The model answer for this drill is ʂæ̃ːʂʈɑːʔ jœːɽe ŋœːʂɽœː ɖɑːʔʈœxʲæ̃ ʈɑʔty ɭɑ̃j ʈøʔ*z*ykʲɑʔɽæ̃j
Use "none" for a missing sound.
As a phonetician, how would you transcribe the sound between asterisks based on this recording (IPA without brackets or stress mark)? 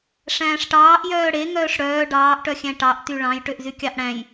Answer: z